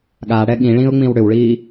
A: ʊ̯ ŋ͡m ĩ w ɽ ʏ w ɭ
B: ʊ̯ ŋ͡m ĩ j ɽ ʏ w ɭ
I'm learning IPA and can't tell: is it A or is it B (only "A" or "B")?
A